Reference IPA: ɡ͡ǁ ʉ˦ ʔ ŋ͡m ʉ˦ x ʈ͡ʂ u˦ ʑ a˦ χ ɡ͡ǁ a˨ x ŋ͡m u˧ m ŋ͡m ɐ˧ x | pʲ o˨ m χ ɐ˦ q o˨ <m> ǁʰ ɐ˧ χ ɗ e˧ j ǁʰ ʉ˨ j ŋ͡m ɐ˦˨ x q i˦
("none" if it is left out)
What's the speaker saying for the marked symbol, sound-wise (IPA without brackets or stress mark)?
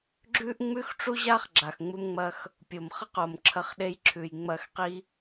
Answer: m